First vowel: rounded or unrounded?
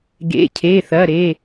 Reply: unrounded